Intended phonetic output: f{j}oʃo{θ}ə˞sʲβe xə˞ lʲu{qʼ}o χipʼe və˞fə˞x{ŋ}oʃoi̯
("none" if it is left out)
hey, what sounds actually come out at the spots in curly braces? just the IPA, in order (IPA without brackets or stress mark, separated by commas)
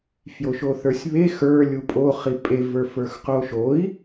j, θ, pʼ, q